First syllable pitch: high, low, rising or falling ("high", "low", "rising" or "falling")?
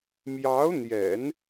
rising